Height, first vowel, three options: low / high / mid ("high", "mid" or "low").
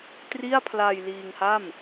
high